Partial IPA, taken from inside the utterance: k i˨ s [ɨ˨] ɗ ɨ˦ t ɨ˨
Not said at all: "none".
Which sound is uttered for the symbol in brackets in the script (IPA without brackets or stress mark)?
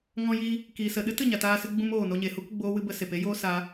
ə˨